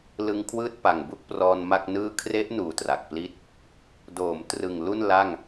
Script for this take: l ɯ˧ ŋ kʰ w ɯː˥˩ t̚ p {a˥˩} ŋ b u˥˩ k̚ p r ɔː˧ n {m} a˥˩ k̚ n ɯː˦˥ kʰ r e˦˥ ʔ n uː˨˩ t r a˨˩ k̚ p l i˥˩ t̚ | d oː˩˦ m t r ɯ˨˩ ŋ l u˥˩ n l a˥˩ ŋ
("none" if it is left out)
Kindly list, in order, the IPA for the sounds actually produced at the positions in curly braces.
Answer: a˨˩, m

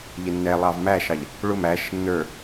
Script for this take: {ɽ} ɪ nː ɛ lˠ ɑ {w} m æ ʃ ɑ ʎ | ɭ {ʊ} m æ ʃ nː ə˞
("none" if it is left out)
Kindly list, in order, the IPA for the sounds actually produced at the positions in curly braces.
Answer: ʎ, v, ʊ

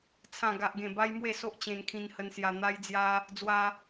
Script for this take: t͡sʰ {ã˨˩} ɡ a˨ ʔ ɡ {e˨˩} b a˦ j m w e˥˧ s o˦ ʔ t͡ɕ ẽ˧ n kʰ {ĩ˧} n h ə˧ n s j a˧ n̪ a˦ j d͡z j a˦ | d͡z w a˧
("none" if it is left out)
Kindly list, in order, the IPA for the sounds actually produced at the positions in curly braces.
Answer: ã˨˩, ẽ˨˩, ĩ˧

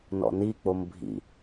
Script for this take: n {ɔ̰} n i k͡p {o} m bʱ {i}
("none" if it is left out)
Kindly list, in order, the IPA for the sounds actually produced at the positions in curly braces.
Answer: ɔ̰, o, ḭ

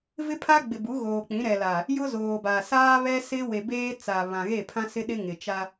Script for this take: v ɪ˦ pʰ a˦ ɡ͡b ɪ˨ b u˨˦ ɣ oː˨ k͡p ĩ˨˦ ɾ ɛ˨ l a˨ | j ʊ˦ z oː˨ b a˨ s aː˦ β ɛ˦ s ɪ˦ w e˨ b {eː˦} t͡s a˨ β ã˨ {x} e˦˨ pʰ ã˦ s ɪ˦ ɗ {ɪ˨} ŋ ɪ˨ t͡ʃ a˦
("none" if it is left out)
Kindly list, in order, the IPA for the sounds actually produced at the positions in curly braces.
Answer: eː˦, ɣ, ɪ˦

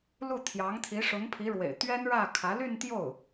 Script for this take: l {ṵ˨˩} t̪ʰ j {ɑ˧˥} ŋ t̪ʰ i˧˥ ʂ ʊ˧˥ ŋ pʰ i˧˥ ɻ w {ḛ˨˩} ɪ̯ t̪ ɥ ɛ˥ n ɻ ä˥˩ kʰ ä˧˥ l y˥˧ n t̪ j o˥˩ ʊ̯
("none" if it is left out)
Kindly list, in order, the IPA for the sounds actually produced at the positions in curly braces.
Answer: u˥˩, ɑ˧˥, ḛ˨˩

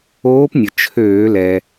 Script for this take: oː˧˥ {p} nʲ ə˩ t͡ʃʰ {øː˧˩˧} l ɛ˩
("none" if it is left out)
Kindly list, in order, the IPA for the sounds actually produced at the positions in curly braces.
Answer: p, øː˧˩˧

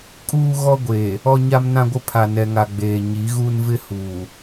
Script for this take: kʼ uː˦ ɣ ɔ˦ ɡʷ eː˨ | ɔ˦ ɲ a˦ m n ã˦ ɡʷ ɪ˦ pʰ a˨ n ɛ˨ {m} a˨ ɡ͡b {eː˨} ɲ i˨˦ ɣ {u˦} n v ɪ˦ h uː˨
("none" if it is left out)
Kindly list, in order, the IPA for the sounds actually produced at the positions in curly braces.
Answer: ŋ, eː˨, u˦

